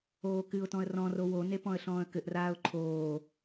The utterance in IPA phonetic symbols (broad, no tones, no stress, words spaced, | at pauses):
oːkɨʊ̯tɔ̃ə̯ rɔ̃ro wone pɔ̃ə̯ɬɔ̃ːə̯kɘʔraːʊ̯ ǃʰoː